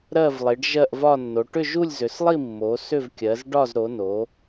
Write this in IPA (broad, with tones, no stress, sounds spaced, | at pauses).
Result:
ɾ ɜ˥˧ v lˠ i˨˦ ɖ ʒ ɜ˥˧ ʔ v ɒ˥˧ nː o˨˦ ʈ ʏ˥˧ ʒ u˥˧ lʲ z ʏ˨˦ s lˠ i˥˧ mː o˨˦ s ʏ˥˧ v kʲ ɜ˨˦ z ɖ ɒ˥˧ z ɾ o˨˦ n o˨˦